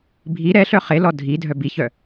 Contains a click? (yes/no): no